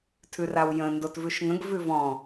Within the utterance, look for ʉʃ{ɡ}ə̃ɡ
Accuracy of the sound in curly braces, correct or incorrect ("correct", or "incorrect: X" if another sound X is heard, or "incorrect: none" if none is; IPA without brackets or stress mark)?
incorrect: ŋ